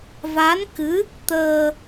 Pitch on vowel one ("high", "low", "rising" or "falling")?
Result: rising